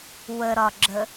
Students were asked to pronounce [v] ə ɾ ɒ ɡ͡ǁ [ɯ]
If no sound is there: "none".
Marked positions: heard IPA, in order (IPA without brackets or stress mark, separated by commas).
w, ə